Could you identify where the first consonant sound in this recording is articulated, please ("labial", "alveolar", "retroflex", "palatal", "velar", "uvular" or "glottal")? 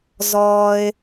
alveolar